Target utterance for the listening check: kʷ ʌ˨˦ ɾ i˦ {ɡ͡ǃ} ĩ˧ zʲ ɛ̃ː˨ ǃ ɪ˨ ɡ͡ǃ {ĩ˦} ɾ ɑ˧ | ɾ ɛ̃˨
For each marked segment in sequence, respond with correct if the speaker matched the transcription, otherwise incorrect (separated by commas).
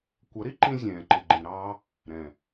incorrect, incorrect